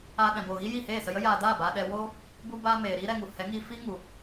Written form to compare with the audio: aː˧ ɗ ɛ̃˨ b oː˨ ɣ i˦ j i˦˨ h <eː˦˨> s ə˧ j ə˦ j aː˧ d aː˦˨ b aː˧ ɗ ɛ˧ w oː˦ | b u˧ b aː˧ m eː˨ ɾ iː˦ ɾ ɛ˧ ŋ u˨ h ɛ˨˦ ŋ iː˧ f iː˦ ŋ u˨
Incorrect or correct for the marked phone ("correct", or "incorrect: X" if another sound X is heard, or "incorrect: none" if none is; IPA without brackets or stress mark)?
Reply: correct